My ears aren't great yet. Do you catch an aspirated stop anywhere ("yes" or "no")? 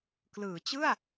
no